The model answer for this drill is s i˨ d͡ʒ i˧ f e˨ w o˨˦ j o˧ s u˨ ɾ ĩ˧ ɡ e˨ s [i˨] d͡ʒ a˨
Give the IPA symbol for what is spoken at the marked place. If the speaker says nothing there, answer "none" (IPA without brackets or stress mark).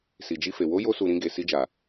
i˧